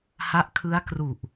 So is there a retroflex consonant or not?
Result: no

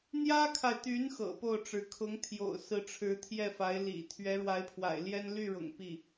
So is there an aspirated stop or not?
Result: yes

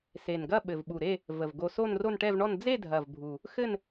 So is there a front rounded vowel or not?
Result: no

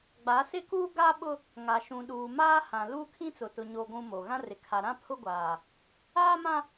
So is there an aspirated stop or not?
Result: yes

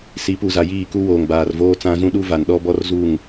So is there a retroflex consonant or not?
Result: no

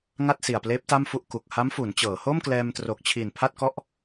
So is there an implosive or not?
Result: no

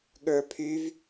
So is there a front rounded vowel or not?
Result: yes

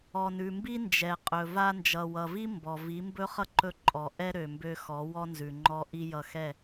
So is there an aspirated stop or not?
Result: no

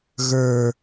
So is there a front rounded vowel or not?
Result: no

